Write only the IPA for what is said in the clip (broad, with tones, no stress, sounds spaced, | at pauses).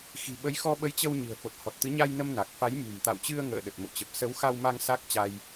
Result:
x i̤˨˩ ɓ ə˨˦ j x ɔ˧ ɓ ə˨˦ j t͡ɕ ə˧ w ɲ ɨ̤˨˩ ə̯ f o˨˩ t̚ h ɔ˨˩ t̚ t̪ ɨ˨˦ ɲ a˧ j n ə˧ m n a˨˩ k̚ f a˨˦ j m ṳ˨˩ m t̪ a̰˧˨ w t͡ɕ ɨ˧ ə̯ ŋ ə̰ː˧˨ ɗ ə˨˩ t̚ m o̰˧˨ t͡ɕ ə˨˩ p̚ s ə˨˦ w x a˧ w m a˧ ŋ s a˦˥ k̚ t͡ɕ a˧ j